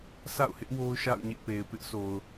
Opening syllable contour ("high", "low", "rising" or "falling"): falling